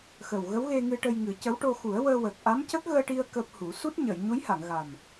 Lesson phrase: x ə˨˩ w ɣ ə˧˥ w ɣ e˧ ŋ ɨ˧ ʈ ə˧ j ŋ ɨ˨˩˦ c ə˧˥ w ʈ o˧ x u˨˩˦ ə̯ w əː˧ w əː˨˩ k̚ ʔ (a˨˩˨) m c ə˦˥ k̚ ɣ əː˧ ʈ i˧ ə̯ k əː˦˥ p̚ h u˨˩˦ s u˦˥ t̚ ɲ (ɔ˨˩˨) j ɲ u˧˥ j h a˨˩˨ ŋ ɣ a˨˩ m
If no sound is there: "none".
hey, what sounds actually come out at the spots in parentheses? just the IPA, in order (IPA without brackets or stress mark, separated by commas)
a˧˥, ə˨˩˨